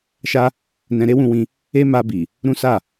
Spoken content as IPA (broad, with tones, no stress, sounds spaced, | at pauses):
ʃ a˦ | n ɛ̃˧ ɾ e˦ w ũ˧ w ĩ˧ | e˦ m a˧ b i˨ | ɾ ũ˦ s a˦˨